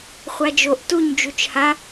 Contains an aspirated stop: no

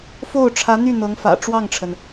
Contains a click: no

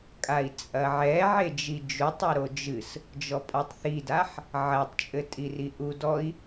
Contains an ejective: yes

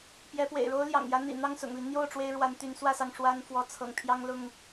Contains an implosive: no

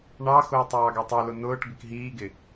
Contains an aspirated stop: no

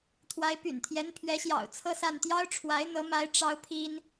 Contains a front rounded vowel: yes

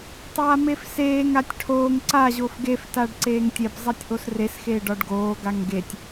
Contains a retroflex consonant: yes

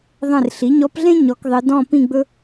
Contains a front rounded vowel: no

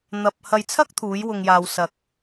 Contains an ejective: no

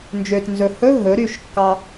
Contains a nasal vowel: no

